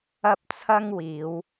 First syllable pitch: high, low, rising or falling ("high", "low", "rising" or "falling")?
high